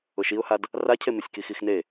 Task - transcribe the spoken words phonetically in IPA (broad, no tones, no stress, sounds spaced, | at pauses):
ʊ ʃ i ʊ̯ h a d | r a cʰ e m e sʲ k i x i x n e